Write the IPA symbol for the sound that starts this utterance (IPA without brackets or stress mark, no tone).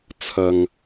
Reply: t͡sʰ